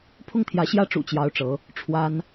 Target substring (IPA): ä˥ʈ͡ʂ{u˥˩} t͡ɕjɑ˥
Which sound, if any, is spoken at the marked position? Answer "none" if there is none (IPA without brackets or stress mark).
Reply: ṵ˨˩